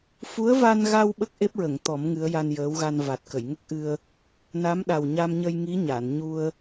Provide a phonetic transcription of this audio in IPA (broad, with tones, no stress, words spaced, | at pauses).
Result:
fu˧˥ə̯va˧nɣa˧w ɓə˦˥k̚ʔe˦˥p̚ɹə˨˩˨ŋt̪ɔ˨˩˦m ŋɨ˧˥ə̯ja˧njəː˧˥wɣa˧n va˨˩t̚kə˨˩˨jŋə˦˥k̚ʔɨ˧ə̯ | na˧˥mɗa˨˩wɲa˧m ɲə˧j ŋi˧˥ɲa˨˩˨n ɲu˧ə̯